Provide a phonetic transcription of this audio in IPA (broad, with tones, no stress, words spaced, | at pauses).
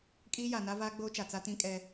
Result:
kʼiː˦ja˨ na˦vaː˦ɡ͡boː˦t͡ʃa˨ t͡sa˦tĩ˦kʼɛ˦